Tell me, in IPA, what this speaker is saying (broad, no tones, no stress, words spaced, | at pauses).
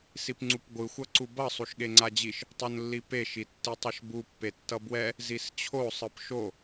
sipŋ͡ǀupɡʷɯ xʷʌǀubʌ sˤuʃɠeŋ͡ǀad͡ʑiʃ | tˤonlːipe ʃitːitˤʌʃbu pːetːʌbwɛ | zist͡ɕʰo sˤɯpʃo